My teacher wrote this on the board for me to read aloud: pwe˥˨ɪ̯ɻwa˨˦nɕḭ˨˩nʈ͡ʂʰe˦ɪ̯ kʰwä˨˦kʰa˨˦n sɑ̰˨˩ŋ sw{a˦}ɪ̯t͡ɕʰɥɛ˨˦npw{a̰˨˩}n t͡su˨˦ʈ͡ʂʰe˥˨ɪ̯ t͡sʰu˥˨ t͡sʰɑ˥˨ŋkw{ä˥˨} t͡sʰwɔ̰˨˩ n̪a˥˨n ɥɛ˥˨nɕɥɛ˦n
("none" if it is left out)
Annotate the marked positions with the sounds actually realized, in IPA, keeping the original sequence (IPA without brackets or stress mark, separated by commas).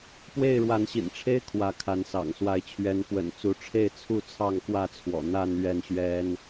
a˨˦, ə̰˨˩, ä˥˨